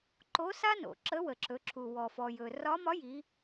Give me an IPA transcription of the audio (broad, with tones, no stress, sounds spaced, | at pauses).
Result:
ǃ o˧˥ s a˥ n o̰˩˧ ǁ ə˧˥ w ə˩ ǁ ɵ˩˧ ǁʰ u˩ w ɔ˩ f ɔ˩ j ɵ˩ r ɒ˧˥ m ɒ˧˥ j i˩˧